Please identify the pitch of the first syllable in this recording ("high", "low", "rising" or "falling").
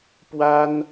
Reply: high